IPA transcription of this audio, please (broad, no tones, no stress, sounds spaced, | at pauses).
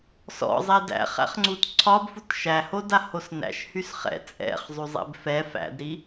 s ɔ̰ zˤ ɛ d æ̰ χ æ̰ χ ŋ͡ǀ u t ǀʰ ɒ b f u t ʃ æ h o d a h o s n æ̰ ʃ h y s χ ɛ̰ t͡sʼ ɛ̰ χ zˤ y zˤ ɛ̰ b f ɛ f æ̰ d ɾ i